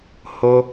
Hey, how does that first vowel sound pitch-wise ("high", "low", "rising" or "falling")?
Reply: high